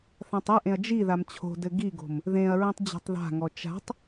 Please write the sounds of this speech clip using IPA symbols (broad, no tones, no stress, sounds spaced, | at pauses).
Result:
θ ã tˤ ɨ ʔ ẽ ɐ̯ d͡ʒ i ð a m t͡ɕʰ o̤ d ɘ ɡ i ɡ o̤ m | ð ẽ ɐ̯ ɹ ĩ tˤ d͡ʑ a̤ tˤ ð a̤ ŋ ɔ t͡ʃ a̤ tˤ